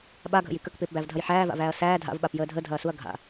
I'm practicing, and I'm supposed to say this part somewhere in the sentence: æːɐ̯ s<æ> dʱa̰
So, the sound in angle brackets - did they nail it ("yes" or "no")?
no